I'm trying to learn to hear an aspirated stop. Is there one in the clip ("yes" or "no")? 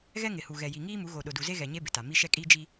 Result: no